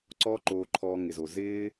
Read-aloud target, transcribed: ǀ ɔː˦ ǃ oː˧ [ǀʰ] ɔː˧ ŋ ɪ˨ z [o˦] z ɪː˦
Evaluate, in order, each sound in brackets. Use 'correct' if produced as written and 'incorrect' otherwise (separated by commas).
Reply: incorrect, incorrect